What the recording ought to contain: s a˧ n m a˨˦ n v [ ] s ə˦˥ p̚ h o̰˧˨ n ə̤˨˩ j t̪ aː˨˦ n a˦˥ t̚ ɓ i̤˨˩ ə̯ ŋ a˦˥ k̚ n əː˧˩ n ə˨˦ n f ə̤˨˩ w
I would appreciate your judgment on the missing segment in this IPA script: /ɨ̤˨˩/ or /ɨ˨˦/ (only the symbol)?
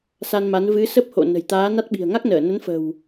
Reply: ɨ˨˦